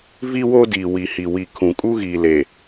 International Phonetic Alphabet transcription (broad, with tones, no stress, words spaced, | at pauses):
vi˦wo˦diː˨ wi˨hi˨ wi˨kʰũ˨ kʼu˦ɣiː˨le˨